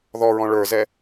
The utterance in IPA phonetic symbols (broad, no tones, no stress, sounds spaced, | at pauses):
ð ɔ ɹ ɔ̃ ɭ ə˞ z ɛ